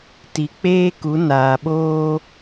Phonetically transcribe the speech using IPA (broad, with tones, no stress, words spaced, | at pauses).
ti˨ k͡peː˦ku˨˦ naː˨ɓoː˦